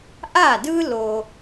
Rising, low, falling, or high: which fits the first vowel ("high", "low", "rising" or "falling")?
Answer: falling